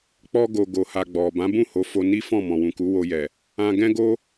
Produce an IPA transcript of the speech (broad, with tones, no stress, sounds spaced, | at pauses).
k͡p ɔ˧ ɡ o˨ ɡ o˨ h a˨ ɡ͡b ɔ˨ b ã˨˦ b ũ˦˨ h o˨˦ f o˧ n i˦ f ɔ̃˦˨ m ɔ̃˨ w ũ˨ k u˨˦ w o˧ j ɛ˨ | ã˧ ɡ ɛ̃˦ ɡ o˦